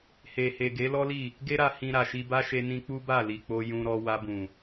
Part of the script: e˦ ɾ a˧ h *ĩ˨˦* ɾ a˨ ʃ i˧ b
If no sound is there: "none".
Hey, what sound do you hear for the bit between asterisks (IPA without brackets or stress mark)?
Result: ĩ˧